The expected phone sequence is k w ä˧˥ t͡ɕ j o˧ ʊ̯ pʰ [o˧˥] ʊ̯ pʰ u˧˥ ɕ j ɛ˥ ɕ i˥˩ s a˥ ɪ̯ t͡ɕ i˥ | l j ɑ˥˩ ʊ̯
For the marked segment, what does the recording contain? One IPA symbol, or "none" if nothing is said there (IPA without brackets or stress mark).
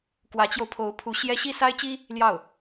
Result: o˧˥